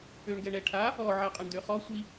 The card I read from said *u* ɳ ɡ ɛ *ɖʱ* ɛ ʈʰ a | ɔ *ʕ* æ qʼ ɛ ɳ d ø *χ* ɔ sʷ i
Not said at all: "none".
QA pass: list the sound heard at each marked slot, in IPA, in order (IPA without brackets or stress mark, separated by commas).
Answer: ø, ɳ, ʕ, χ